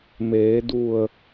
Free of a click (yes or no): yes